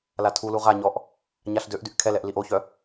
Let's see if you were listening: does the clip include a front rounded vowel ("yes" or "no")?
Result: yes